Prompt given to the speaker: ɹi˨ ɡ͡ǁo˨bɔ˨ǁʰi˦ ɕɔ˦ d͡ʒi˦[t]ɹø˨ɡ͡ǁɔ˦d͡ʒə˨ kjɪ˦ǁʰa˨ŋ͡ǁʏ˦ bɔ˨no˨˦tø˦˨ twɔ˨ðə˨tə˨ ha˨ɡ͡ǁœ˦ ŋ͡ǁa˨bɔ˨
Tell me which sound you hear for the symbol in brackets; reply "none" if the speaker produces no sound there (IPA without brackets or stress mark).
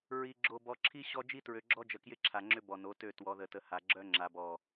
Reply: t